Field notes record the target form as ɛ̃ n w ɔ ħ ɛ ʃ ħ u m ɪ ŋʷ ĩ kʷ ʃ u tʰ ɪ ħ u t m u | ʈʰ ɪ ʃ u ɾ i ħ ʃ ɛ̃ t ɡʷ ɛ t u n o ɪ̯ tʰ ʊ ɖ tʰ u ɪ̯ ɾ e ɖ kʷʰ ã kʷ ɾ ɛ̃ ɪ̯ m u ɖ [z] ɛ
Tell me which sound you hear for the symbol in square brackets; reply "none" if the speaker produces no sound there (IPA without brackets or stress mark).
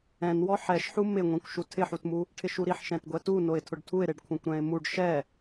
ʃ